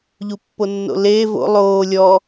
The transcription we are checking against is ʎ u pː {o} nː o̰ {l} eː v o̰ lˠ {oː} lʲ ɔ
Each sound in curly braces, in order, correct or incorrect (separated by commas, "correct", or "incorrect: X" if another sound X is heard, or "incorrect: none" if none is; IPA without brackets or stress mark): correct, correct, correct